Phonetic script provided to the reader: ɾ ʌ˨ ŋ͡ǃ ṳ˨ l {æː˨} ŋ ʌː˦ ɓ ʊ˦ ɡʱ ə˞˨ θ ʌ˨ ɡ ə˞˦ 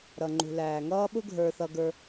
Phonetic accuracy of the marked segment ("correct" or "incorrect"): correct